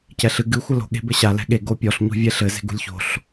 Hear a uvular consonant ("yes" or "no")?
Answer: no